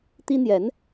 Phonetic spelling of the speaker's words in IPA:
t̪i˥n̪jɛ˧˥n

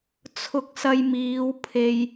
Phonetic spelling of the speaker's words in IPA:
t͡sʰʊ˧k̚sɐ˧jmiː˨˧w pʰe˨j

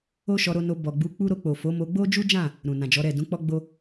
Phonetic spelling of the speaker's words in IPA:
o˦ʃɔ˧ɾo˧no˧ bɔ˨ɡ͡bu˨˦k͡pu˦ ɾo˧k͡po˨fo˨˦ mo˧ɡ͡bo˦d͡ʒu˦d͡ʒã˦˨ | ɾũ˨nã˨d͡ʒɔ˨˦ɾɛ˦˨ dũ˨˦k͡pɔ˦ɡ͡bo˦

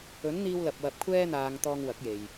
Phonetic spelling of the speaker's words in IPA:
ɵ˨˥nn̪iː˧wlɐ˨p̚ wɐ˨p̚kʷʰɛː˧n̪aː˨ŋ t̪ɔː˧ŋwɐ˨˥k̚je˨j

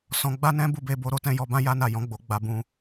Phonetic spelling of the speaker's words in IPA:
sɔ̃˧ɡ͡ba˦nɛ̃˦ bu˦˨be˧bo˧ ɾo˦tɛ̃˧ jɔ˧bã˦ ja˦na˦˨ jɔ̃˨˦ɡ͡bo˧ ɡ͡ba˧bũ˧

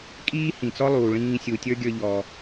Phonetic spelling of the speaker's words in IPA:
kʼiː˥hĩ˩t͡sɔ˥lˠuː˩ ɭĩː˧sʲu˩tʲə˞˥ɡʲə˞˧ ʎɔ˩

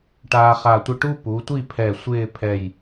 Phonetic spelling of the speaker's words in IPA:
ʈaː˧χa˧˩tʷɪ˥˧ ʈu˥pu˩˧tʷi˥˧ pʰɛ˧˩ sʷɪː˥˧ pʰɛ˧˩j

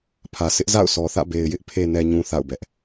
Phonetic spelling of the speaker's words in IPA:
pʰä˨sɪ˦ʔza̰˦˨ʊ̯ sɔ˨θä̰˦˨be˨ɪ̯ jɪ˦ʔpʰe˨nɛ˨ɲũ˨ θa̰˦˨ʊ̯bɛ˦ʔ

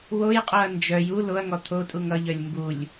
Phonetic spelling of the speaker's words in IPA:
wojqʼoɐ̯ nd͡ʒœj u loɐ̯ŋɔ t̪ʰotʼuŋ ʌʎœlʲ mbulʲ

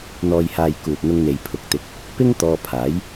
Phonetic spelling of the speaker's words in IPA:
n̪ɔː˨jhaː˨j kuː˨t̚n̪ʊ˧ŋn̪e˨j pʰʊ˨k̚t̪ɪ˨˥k̚ | pɪ˥ŋ t̪ɔː˧pʰaː˨˥j

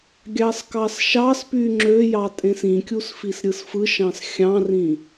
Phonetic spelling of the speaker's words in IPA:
ɡʲɑskɑsʃɑspy ŋ͡ǁøjɑ tʼẽsĩkʲus fisɾʲɯsfɯʃɑ̃s xʲɑ̃rĩ

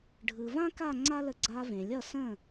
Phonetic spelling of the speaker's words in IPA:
ɖʱɯ˩vã˥ka˥˩ ŋ͡ǀa˥ lə˧ɡ͡ǀa˧vẽ˩ lʲʌ˥˩sə̃˥˩

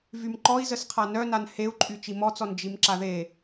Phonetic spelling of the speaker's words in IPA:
vymǃɔi̯zəsqʰa nœnan heu̯ǃʼy t͡ʃimɔt͡sɔn d͡ʒimǁaðe

